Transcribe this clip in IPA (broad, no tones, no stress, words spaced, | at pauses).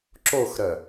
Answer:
ǁoxɾœ